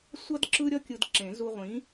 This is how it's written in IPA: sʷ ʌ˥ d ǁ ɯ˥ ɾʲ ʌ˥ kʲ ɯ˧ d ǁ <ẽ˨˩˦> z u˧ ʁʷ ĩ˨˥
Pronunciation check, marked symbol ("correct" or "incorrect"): correct